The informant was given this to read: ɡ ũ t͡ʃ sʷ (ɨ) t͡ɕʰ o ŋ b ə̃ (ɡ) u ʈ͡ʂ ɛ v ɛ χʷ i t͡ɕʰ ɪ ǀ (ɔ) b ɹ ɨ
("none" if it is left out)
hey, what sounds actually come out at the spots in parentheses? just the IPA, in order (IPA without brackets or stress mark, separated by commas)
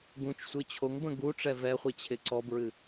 ɨ, ɡ, ɔ